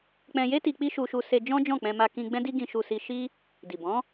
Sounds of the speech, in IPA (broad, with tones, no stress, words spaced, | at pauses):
k͡pɛ̃˧je˦ti˧ k͡pi˦ʃu˧ʃu˧se˧ d͡ʒɔ̃˦d͡ʒɔ̃˦˨k͡pɛ̃˧ma˧ kĩ˧ɡ͡bɛ̃˦di˦ ɡĩ˧ ʃu˧si˧ ʃi˦ | di˨bɔ̃˨˦